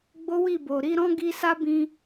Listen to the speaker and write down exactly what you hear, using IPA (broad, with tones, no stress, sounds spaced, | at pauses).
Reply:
ɡ͡b o˦ w i˦˨ b o˨ ɾ i˨˦ ɾ ɔ̃˦ ɡ i˧ s a˦ b ĩ˧